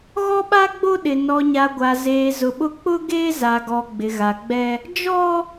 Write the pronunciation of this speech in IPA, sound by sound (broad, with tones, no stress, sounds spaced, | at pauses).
ɣ ɔ˦ ɓ a˦ ɡ͡b o˦ ɗ ɪ˨ n ɔ˨ ɲ a˨ ɡʷ a˨ z eː˨ z ʊ˨ ɓ ʊ˦ k͡p ʊ˦ ɡ eː˦ z a˨ ɡ ɔ˨ ɡ͡b ɪ˨ ɣ a˨ ɡ͡b ɛ˦ | d͡ʒ ɔ˦